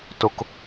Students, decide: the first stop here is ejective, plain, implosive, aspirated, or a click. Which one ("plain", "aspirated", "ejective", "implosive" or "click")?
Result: plain